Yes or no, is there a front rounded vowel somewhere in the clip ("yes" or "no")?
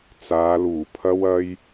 no